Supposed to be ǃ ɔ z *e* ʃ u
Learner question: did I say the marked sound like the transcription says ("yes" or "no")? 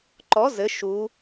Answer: no